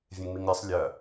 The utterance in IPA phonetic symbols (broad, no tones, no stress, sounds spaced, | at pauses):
vʲ ẽ ŋ m i ŋ ɾʲ ɜ sˤ lʲ ɜ